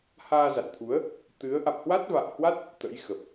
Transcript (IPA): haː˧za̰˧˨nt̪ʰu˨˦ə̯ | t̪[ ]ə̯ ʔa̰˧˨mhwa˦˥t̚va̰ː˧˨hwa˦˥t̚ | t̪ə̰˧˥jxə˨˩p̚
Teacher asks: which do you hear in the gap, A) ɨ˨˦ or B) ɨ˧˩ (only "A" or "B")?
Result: A